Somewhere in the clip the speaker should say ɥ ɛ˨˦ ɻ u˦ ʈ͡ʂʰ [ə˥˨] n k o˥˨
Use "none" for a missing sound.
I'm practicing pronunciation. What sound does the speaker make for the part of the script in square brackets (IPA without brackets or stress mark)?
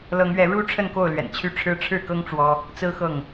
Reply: ə˥˨